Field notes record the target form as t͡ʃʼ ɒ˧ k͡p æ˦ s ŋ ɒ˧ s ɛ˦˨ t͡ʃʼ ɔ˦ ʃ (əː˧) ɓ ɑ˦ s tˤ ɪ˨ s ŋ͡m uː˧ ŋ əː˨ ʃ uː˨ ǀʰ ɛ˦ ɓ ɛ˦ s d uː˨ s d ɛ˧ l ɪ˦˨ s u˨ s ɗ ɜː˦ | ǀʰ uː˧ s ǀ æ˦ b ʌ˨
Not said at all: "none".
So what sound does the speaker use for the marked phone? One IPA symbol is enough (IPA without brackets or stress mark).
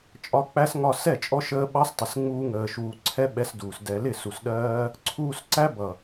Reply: əː˧